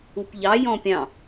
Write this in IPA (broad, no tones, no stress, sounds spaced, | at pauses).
u p ʎ ɑ j ɔ̃ pʲ ɑ̃